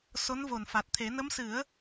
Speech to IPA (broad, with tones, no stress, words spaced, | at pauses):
so˧˥nvo˨˩nfa˨˩t̚t̪ʰe˨˩˦ nə˧˥msɨ˨˩˦ə̯